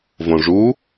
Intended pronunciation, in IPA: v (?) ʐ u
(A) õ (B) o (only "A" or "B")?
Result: A